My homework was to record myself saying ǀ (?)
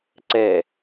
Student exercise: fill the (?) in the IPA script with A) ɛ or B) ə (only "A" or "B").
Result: A